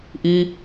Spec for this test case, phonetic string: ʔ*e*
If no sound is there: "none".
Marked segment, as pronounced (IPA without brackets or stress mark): i